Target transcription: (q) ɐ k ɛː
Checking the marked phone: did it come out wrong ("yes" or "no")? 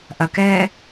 yes